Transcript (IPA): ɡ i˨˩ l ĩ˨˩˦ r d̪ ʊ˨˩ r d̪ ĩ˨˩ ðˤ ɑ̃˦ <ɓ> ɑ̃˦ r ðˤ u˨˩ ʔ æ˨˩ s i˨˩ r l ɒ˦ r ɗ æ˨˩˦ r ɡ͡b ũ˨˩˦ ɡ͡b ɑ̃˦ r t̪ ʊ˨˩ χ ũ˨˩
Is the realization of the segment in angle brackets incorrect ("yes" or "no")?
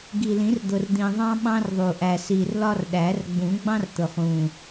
no